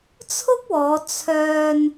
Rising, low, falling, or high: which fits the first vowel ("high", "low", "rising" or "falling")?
high